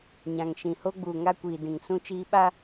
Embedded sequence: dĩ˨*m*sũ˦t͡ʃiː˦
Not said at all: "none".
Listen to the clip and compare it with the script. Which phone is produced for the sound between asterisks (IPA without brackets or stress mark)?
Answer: ŋ